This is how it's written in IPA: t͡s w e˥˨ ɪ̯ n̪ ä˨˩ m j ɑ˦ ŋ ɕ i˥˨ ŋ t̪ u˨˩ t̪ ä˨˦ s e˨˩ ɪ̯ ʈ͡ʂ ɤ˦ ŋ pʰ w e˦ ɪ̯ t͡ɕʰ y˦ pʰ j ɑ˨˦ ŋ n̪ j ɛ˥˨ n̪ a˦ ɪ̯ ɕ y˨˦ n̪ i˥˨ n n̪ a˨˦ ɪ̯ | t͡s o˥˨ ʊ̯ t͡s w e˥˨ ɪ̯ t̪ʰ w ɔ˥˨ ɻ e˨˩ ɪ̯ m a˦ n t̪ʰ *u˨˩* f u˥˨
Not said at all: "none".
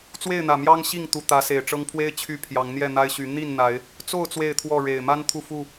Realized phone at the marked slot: u˥˨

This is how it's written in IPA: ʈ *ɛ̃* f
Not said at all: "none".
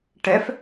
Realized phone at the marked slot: ɛ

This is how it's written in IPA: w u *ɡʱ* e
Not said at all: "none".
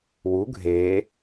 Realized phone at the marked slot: ɡʱ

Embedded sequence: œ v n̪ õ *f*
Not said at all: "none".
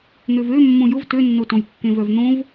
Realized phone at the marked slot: v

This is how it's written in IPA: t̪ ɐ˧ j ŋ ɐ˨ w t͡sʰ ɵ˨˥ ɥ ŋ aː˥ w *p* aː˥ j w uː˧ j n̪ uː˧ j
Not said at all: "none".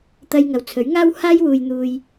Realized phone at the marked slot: h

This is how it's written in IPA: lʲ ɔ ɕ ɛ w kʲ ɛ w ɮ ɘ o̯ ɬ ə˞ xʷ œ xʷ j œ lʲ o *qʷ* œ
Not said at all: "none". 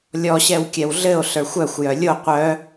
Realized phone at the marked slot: qʷ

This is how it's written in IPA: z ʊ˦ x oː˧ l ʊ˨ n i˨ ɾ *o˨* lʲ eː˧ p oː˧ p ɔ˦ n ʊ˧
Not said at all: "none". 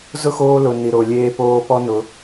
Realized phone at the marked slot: o˨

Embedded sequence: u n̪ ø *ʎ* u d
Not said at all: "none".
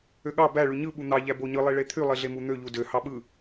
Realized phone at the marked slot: ʎ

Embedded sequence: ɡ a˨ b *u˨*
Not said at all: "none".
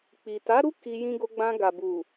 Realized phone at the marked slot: u˨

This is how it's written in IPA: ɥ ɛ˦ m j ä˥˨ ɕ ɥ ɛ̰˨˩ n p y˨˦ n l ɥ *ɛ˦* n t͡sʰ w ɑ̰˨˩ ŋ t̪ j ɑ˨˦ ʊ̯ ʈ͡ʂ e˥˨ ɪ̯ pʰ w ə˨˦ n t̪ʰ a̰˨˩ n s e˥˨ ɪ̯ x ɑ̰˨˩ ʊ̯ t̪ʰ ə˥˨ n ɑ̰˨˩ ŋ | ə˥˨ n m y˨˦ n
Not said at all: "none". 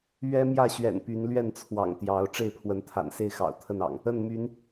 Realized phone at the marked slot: ɛ˥˨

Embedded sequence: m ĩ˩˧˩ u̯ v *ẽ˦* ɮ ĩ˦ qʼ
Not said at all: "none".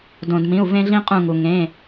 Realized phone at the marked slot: ẽ˦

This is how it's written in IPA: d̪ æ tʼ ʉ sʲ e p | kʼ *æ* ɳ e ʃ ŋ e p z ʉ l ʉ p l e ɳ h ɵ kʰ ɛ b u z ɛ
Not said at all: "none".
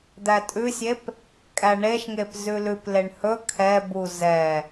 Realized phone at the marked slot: æ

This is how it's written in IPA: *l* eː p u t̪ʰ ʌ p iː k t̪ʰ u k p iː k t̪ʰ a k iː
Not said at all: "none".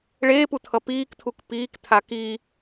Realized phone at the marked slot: ɭ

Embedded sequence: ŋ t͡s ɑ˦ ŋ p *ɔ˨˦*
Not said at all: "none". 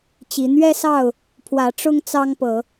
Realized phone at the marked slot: ɤ˨˦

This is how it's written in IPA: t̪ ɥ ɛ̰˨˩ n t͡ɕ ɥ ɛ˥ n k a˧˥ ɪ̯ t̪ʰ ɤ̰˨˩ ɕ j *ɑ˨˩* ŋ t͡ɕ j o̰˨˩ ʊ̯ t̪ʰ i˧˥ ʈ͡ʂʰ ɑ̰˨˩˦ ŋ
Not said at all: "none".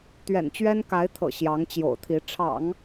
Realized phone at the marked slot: ɑ˧˥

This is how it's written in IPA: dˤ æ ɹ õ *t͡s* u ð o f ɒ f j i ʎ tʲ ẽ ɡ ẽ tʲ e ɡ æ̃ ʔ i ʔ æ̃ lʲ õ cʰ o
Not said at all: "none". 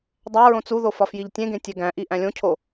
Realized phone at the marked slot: t͡s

